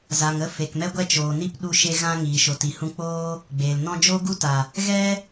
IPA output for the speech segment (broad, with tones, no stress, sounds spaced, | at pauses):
z a˨ ŋ ə˧ f e˨ k m ɛ˦ ɡʷ ɛ˦ t͡ʃ oː˨ n i˦ p ɗ u˧ ʃ e˦ ɣ ã˦ ŋ iː˨ ʃ o˨ t i˨ h ũ˧ k͡p oː˦ | ɡ͡b eː˨ l n ɔ̃˦ d͡ʒ oː˦ ɡ u˦ t a˨ | ɣ ɛ˦